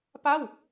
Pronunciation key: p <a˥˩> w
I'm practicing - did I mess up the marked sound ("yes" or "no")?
no